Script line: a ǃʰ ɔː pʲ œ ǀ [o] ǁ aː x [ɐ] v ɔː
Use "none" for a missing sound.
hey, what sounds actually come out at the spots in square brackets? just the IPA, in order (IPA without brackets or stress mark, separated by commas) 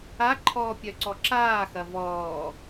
ɔ, ɐ